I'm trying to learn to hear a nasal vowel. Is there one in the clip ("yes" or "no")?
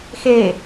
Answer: no